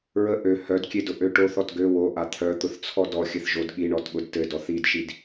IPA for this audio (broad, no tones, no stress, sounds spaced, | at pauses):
ɹ ə ʔ ø h œ d kʲ e d ʊ ʔ ø ʈ o θ ɔ t ɡ ø w o ʔ a t̪ʰ œ t̪ ʊ θ t͡sʰ ɔ d ɔ xʲ ɘ θ ʒ o d ɠ i ɳ ɔ t ɠ ʊ d t ɘ d ɔ θ i d ʃ i d